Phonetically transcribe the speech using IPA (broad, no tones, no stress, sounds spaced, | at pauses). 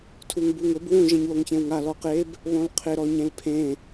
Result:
tʰ u ŋ b u ŋ ʊ b w ũ ʒ ẽ ɲ w o ŋ ç ẽ w ŋ a l ɔ q e b | β õ l qʰ ɪ ɾ ɔ ɲ ẽ l pʰ ẽ